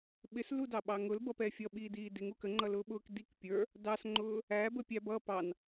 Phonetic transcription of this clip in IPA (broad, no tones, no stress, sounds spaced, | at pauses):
ɓ ɪ s l u d ɑ ɓ ɑ ŋ ʊ l b ʌ p ɛ fʲ ʌ ɓ iː d iː d ɪ ŋ u k ə ŋ͡ǃ ʌ l ʊː ɓ ʊː k d i k pʲ ə˞ | d ɑ s ŋ͡ǃ ʊː | æ b ə pʲ æ b ʌ p ɑ n